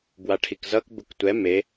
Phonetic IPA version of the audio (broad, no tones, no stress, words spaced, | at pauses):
bwaʈʰikzʌk buktʷɛ me